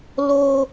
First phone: l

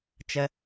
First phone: t͡ʃ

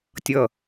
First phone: tʲ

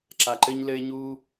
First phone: ǁ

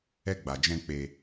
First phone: ɛ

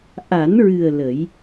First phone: ʔ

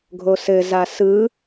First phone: ɡʱ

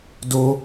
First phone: d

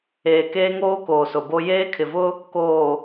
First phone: eː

